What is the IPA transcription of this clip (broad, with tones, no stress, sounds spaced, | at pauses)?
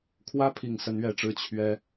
kʰ w ä˥ pʰ i˨˩ ŋ s ə˧˥ n ɥ ɛ˨˩ ʈ͡ʂ ɻ̩˥ t͡ɕʰ ɥ ɛ˥